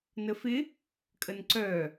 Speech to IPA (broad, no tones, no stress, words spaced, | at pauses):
nəfɪ | kʼənǀœ